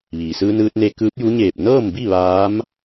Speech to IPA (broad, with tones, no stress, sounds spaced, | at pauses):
ʋ iː˩ s ɯː˧ n ɯː˧ t̚ n e˧ k ɯː˧˥ p̚ j u˧˥ ɲ eː˧˩ p̚ n ɤː˥˨ m b i˥˨ ʋ aː˧˥ m